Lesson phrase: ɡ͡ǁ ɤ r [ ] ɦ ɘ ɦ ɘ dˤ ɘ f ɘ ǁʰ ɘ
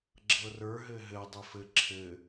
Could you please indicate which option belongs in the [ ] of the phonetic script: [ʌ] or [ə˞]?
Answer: ə˞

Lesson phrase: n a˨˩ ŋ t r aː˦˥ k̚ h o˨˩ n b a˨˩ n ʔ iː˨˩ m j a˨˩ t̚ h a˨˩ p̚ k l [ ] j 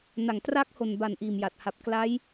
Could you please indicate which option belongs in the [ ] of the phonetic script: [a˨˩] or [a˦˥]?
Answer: a˦˥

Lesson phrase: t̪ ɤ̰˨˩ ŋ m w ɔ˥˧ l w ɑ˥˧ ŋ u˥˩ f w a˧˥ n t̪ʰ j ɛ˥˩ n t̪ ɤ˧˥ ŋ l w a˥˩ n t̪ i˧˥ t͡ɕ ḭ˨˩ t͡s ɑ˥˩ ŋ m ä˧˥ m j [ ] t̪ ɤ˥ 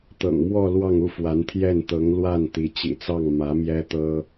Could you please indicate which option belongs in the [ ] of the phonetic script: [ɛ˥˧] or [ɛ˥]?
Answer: ɛ˥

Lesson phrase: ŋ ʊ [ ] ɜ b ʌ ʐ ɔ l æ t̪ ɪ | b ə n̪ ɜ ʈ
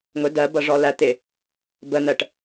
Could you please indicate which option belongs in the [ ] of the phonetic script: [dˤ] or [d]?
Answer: d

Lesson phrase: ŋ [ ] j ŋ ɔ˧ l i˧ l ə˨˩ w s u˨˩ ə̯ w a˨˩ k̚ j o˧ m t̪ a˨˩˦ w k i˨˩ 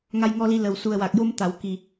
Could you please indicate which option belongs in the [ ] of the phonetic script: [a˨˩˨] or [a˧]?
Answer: a˧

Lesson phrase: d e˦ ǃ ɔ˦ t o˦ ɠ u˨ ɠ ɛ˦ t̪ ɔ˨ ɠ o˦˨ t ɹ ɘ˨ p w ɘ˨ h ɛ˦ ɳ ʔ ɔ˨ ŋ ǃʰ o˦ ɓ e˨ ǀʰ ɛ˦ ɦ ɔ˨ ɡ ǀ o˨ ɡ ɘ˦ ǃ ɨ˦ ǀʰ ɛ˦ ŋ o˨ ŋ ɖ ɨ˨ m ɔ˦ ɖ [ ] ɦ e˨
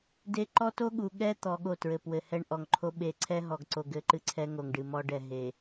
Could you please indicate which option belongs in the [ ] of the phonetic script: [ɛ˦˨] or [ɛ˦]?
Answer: ɛ˦˨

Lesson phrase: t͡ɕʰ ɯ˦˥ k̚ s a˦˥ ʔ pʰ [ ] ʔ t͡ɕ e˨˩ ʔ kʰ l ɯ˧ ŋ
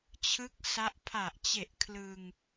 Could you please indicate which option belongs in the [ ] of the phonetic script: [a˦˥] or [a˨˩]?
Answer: a˨˩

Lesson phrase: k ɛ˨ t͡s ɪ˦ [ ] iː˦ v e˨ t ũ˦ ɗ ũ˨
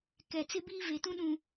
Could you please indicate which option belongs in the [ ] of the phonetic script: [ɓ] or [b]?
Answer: b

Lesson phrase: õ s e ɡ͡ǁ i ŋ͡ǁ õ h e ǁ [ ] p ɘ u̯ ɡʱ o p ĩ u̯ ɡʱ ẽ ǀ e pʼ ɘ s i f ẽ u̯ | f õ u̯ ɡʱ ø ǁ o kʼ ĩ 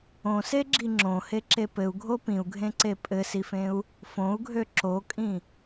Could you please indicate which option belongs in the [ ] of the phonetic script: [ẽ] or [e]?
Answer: e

